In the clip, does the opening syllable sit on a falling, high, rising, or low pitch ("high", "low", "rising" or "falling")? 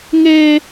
high